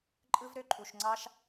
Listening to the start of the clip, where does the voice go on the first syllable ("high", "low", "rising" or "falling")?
high